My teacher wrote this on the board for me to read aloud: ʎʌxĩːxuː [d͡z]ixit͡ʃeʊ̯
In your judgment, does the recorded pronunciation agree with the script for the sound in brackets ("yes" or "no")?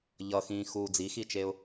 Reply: yes